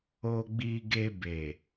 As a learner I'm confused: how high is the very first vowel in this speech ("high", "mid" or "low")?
mid